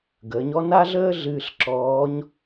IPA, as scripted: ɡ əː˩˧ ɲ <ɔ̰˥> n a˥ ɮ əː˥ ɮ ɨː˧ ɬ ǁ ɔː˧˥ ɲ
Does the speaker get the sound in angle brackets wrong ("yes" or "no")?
yes